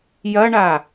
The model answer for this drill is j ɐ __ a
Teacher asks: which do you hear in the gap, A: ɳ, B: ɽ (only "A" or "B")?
A